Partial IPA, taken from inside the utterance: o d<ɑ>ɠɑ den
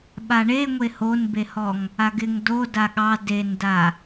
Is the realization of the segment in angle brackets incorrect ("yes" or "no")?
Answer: yes